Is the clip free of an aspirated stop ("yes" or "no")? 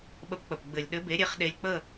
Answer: yes